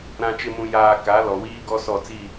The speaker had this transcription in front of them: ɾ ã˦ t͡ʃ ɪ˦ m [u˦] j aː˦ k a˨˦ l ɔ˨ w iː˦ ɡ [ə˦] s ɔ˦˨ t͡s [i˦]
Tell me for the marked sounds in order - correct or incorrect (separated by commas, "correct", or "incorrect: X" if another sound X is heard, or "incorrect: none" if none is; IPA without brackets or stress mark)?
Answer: incorrect: ũ˦, incorrect: ɔ˦, incorrect: i˦˨